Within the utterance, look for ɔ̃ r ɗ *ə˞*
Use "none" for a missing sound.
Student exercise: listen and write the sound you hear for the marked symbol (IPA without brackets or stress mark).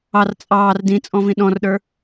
ə˞